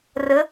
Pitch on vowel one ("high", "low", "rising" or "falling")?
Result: rising